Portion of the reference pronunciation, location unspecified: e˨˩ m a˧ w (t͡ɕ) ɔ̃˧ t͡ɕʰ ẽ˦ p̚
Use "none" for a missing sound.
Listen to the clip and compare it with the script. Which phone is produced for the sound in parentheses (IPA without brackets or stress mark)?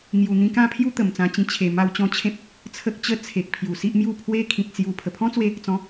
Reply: t͡ɕ